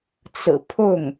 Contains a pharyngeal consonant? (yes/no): no